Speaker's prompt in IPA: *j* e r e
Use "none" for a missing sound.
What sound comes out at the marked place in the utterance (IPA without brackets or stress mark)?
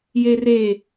j